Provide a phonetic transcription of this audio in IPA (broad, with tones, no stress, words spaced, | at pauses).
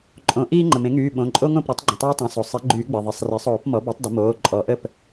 ǃʼõ˩˥ ʔiː˦ŋ͡ǃə˩mẽ˩˥ŋyː˩˧˩ ɓõ˩˧˩ǃʼo˦ŋõ˥˩p ɾy˩˥tˤɡ͡ǃə̃˩˧˩tˤoː˦ tˤẽ˩˧˩so˩ sˤi˩˥ ɡ͡ǃyː˨˩˦ɡ͡be˩ ðˤi˩˧˩sˤre˩˥sˤoː˨˩˦p mɔ˩˥bo˩˥tˤ də˩˥moː˩˧˩ ǃʼɔ˨˩˦ʔə˥˩p